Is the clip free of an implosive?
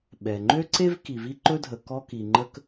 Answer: no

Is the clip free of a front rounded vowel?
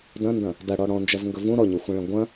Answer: yes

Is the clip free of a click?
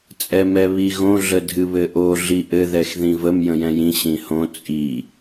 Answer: yes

